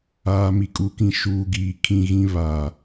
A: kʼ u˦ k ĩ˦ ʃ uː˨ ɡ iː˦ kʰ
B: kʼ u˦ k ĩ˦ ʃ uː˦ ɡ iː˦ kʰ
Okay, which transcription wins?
B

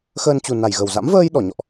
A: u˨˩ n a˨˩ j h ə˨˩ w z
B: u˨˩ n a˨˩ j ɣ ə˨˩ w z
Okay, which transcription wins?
B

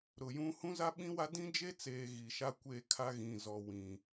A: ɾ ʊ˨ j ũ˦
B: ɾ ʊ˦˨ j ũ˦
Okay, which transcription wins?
A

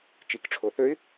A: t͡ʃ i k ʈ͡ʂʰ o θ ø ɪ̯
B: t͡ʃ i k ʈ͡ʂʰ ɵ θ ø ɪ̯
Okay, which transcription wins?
A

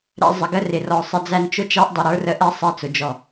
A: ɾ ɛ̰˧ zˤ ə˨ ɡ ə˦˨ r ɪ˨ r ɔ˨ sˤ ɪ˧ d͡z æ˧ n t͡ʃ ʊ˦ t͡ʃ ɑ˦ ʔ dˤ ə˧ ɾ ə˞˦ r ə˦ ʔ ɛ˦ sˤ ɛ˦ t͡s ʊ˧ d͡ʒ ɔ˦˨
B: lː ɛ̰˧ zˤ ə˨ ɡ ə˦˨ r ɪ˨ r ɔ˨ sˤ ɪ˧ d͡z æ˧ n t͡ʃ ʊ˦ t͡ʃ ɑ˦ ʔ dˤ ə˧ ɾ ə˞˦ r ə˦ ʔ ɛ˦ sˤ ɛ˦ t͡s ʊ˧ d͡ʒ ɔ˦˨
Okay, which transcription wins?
A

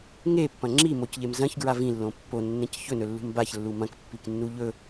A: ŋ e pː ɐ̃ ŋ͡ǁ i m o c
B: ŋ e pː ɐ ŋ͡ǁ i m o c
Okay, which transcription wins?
A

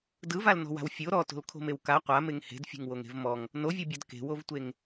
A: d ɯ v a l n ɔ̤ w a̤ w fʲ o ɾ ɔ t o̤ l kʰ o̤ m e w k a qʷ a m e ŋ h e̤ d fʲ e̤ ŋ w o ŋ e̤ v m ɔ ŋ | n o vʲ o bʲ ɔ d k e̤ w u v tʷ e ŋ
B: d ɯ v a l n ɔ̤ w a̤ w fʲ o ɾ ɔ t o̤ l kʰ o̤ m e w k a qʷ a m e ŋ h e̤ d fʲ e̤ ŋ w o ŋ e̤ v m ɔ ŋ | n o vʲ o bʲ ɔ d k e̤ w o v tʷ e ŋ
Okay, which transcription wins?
B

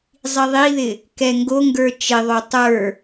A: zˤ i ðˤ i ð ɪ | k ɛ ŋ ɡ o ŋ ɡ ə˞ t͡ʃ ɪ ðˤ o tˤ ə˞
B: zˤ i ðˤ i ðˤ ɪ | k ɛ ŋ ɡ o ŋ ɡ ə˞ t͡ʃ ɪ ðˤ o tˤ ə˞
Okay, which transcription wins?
A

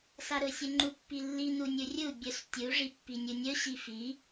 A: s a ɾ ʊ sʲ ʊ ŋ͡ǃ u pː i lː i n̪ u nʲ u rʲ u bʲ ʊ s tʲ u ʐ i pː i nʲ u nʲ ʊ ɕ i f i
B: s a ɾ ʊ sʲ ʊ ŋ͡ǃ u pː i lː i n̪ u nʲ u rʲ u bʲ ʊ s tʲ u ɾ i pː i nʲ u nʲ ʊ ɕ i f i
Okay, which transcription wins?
A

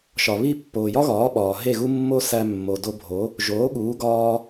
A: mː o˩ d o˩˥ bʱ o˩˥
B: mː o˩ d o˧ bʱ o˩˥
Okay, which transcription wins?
B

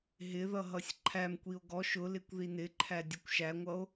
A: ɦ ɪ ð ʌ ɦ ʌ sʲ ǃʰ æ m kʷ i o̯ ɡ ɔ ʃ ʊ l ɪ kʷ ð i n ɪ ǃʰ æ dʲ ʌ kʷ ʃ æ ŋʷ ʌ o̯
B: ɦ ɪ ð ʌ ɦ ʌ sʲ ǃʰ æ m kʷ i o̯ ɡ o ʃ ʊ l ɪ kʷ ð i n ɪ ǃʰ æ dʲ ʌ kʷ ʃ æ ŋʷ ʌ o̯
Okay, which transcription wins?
A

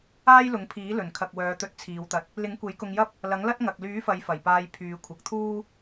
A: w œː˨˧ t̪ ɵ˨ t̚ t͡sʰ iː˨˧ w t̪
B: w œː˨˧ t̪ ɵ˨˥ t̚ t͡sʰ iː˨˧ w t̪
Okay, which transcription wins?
B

